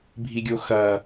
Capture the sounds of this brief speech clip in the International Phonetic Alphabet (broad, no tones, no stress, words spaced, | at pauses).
bʱiɡʲoxɐ